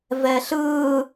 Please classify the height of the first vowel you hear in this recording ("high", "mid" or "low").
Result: mid